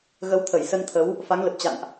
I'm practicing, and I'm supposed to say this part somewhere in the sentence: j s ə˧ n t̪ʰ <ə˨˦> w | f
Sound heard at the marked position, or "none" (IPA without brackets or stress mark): ə˨˦